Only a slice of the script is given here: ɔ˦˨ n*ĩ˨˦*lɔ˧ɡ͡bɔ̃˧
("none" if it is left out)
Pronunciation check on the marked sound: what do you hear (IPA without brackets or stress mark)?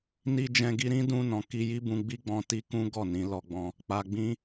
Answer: ĩ˨˦